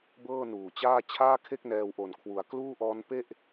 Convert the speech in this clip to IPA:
b ɤː˥˩ n uː˨˩ t͡ɕ aː˥˩ t͡ɕʰ aː˥˩ kʰ e˥˩ k̚ n ɛː˧ w ʔ o˨˩ n kʰ w u˩˦ a̯ k l uː˥˩ ʔ ɔː˦˥ n p e˥˩ ʔ

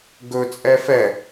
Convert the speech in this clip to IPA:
ɡ ɵ t͡sʼ ɛ f ɛ

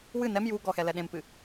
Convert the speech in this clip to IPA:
w ɨ n ɛ m j u ɡ ɔ x ɛ l ɛ ɗ ẽ m p ɨ

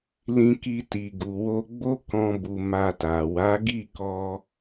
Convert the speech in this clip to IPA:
l ĩ˧ k i˧ t i˨ ɡ u˨ w o˧ ɡ͡b o˦ k ɔ̃˦ b u˧ m a˧ t a˨ w a˨˦ ɡ i˦˨ k ɔ˧

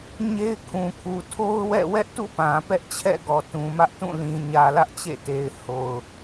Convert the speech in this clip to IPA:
ɲ e˦ ɪ̯ kʰ ũ˨ kʰ u˨ tʰ o˦ ʊ̯ w ɛ̰˦˨ w ɛ˦ ʔ t ṵ˦˨ p ã˨ p ɛ˦ ʔ t͡ɕʰ ɛ̰˦˨ ɡ ɔ˨ t ũ˨ m ä˦ ʔ t ũ˦˨ l ĩ˨ ɲ ä˨ l ä˦ ʔ t͡ɕ ḛ˦˨ t e˨ ɪ̯ h o˨ ʊ̯

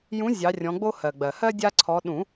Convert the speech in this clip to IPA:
j ũ˨˦ zʲ ɑ˨˦ rʲ ɔ̃˨˦ ɡ͡b o˦ h ɜ˩ ɡ͡b ɜ˩ h ɜ˦ dʲ a˦ ǀʰ ɔ˨˦ ɗ ũ˨˩˦

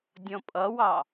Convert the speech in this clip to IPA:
dʲ ɔ̃ pʼ ʌ w ɑ

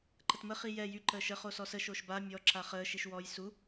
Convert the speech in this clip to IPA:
ǃ ə t m ə χ i j ɛ j y ǃ əː ʃ ə χ o s ɔ s ə ʃ o ʃ b a mʲ ɔ ǁ a χ əː ʃ i ʃ w ɔ j s u

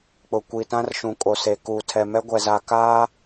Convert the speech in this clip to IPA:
k͡p ʊ˨ kʷ i˨ t ã˦ r ʃ ũ˨ kʼ o˨ s e˨ k uː˨ tʰ ɛ˨ m ɛ˦ ɡʷ ɛ˨ z a˨ k aː˦

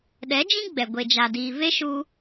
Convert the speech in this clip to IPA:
ɗ ɛ˨˦ d͡ʒ ĩ˦ ɡ͡b ɛ˨ ɡʷ e˧ d͡ʒ a˧ d iː˧ v e˦ ʃ u˧

